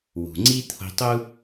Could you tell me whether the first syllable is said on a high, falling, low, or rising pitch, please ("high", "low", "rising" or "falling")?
low